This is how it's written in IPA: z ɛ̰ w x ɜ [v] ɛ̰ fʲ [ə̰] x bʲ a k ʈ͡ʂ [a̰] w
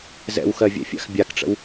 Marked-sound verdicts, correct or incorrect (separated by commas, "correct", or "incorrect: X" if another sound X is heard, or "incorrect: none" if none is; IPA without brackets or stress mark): incorrect: vʲ, incorrect: a̰, incorrect: ə̰